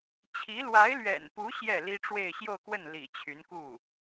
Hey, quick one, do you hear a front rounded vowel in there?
yes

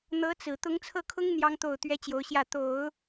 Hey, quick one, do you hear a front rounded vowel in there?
no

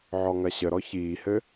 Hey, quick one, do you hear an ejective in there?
no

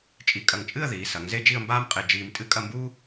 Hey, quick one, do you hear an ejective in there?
yes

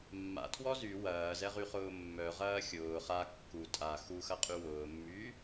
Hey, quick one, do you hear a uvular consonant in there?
yes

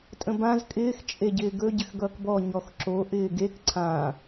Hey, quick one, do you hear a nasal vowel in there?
yes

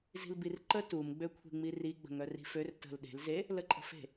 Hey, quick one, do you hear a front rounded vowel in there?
yes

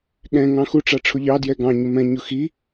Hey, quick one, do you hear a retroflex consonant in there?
yes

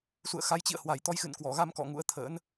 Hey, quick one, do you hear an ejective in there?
no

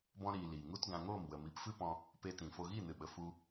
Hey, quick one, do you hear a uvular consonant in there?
no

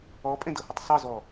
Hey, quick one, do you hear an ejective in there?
yes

